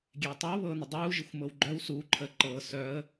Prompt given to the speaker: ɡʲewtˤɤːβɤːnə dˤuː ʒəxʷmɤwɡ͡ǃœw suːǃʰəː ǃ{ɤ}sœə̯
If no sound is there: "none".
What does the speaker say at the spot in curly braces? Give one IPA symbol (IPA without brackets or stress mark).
ɤː